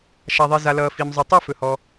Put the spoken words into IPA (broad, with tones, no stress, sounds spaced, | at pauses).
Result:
ʃ a˩ ðˤ i˩ z a˩ l ʌː˩ f i˩ m zˤ ɵ˩ tˤ ɛ˥˧ f ɵ˩ h ɔ˩